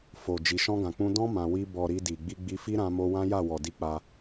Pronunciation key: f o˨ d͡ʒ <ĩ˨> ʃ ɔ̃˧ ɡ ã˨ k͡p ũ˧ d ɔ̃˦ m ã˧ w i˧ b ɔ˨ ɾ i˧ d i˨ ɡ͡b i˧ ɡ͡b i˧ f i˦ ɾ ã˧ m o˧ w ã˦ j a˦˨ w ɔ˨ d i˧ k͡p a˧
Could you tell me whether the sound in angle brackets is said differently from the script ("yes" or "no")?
yes